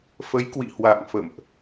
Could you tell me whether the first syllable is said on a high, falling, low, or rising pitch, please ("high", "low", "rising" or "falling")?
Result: rising